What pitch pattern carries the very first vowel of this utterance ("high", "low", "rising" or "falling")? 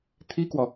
high